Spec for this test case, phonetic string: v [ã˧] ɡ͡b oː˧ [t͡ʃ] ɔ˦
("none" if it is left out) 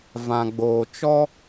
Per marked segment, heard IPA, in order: ã˧, t͡ʃ

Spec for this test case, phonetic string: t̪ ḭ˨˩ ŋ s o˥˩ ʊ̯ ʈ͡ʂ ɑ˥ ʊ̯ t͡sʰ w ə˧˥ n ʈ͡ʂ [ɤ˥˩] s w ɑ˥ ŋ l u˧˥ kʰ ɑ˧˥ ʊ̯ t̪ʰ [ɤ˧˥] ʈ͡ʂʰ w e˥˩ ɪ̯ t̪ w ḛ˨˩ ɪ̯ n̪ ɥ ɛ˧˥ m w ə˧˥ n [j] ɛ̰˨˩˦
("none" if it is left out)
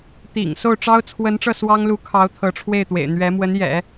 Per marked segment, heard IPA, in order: ɤ˥˩, ɤ˧˥, j

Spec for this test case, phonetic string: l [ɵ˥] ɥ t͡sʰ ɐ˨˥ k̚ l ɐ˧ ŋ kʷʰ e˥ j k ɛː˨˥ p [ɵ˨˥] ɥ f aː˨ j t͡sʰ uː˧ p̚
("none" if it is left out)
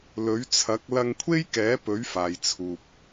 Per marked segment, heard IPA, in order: ɵ˨˥, ɵ˨˥

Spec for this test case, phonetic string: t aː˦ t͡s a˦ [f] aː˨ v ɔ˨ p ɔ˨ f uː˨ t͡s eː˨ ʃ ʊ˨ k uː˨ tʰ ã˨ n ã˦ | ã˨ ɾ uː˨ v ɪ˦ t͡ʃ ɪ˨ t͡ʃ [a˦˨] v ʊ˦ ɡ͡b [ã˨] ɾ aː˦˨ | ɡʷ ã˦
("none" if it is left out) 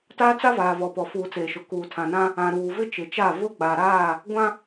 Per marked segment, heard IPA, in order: v, a˦˨, a˨

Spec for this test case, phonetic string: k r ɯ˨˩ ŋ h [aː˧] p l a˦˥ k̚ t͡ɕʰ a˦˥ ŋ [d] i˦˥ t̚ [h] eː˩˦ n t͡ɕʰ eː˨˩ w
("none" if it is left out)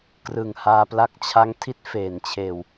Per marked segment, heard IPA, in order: aː˧, tʰ, f

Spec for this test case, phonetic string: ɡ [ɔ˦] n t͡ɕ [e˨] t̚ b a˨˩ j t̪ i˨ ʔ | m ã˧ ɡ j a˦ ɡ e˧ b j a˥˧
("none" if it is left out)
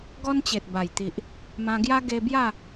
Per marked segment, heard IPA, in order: ɔ˦, e˨

